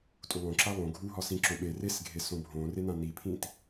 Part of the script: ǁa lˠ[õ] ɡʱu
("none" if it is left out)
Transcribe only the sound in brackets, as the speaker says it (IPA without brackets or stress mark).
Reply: õ